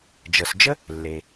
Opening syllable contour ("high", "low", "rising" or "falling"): low